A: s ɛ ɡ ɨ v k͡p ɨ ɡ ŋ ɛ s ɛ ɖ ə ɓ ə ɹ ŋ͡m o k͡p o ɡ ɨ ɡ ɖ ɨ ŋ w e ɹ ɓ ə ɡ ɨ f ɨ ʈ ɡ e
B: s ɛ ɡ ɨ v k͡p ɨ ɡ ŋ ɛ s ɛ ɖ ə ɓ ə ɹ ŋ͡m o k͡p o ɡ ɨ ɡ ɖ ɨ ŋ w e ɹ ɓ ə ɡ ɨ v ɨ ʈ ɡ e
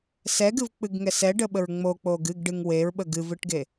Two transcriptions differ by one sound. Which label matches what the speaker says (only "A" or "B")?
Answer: B